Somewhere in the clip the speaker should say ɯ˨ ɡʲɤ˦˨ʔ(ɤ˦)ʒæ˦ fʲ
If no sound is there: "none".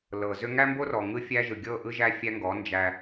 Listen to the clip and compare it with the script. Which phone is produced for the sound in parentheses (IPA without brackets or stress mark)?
ɯ˦